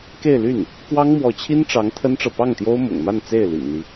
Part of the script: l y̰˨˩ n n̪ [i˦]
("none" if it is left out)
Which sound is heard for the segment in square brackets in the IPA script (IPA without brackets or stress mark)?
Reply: i˦